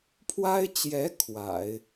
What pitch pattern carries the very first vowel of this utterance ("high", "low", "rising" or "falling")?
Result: high